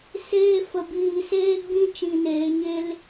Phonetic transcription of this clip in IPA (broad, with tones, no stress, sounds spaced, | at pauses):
s eː˦ f ə˧ b iː˧ s eː˦ ɡ͡b ĩ˦ t͡ʃ ĩ˧ n eː˨˦ ɲ e˦ l